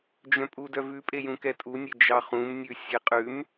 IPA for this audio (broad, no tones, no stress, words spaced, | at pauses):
d͡ʒœ̃pʼudœvʉ pʼejũkɛtʼu nʲed͡ʒɑχũm nʲʉsʲeqʼʉm